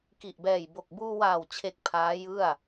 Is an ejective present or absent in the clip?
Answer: absent